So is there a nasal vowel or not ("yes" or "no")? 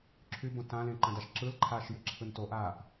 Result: yes